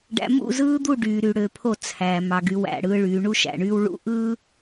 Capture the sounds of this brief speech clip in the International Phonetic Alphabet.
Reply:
ɖ æ̰˨ m ṵ˦˨ z ɯː˦ d̪ u˦˨ ɖ yː˨ ɾ y˨ ɽ ø˨ pʰ o˦˨ t͡sʰ æ˨ m ɑ˨ ɡ y˨˦ w æ̰˨ ɽ ɯː˦ ɭ yː˨˦ ɳ u˦ ʃ æ̰˨ ɳ yː˦ w ɭ ṵ˦ ʔ ɯ˦

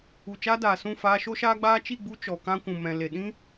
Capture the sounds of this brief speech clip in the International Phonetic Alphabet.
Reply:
u˨ t͡ʃ aː˧ d aː˨ s ũ˦˨ f aː˧ ʃ o˦ ʃ aː˦ ɡ͡b aː˦ t͡ʃ i˦˨ ɡ͡b u˧ t͡ʃ ɔ˨ k ã˧ kʷ ũ˨ m ɛ̃˨ l e˨ ɗ ĩ˦

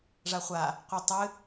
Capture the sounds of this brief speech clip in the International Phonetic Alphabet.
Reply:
ʐ a χʷ a | qʷ i tˤ ɨ

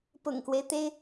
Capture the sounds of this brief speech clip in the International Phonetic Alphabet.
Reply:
p ʊ̰˨˩ ŋ k w e˦ ɪ̯ t̪ e˥ ɪ̯

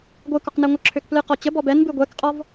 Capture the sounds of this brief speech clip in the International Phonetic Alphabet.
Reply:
ɡʷ ɨ k ɔ q n ɛ ŋʷ ə ǁʰ ø k p l ɨ q ɔ t͡ɕ ə b ɔ b ɛ n b ɨ ɡʷ ɛ k qʼ ɔ v

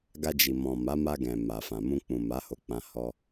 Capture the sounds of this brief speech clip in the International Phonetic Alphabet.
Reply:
ɡ a˧ d͡ʒ i˨ m ɔ̃˨ m a˨˦ m a˧ ɡ ɛ̃˨ m a˨ f ã˨ m ũ˧ k͡p ũ˨ m a˨˦ h o˧ k͡p ã˧ h ɔ˧

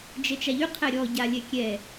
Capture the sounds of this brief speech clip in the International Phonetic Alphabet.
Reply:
d͡ʒ ɛ t͡ʃ a ʎ y qʰ ɛ ɾʲ ɔ ɟ a lʲ ɛ kʲ ɛ

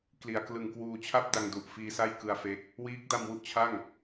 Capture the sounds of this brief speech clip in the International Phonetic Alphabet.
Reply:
k l i˨˩ a̯ k l ɯ˨˩ ŋ k w uː˧ t͡ɕʰ a˥˩ p̚ d a˧ ŋ d u˨˩ ʔ f iː˧ s a˥˩ j k ɯ˧ a̯ f e˦˥ k̚ | w iː˦˥ k̚ d a˧ m w u˥˩ ʔ t͡ɕʰ a˥˩ ŋ

